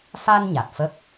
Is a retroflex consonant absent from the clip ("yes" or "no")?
yes